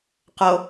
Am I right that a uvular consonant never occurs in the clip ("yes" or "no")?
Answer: no